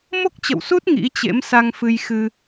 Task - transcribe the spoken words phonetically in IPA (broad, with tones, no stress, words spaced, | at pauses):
mo˦˥k̚t͡ɕə̰˧˨wsu˦˥t̚ ŋḭ˧˥t͡ɕḛ˧˥msa˧ŋ fɨ˧jxɨ˧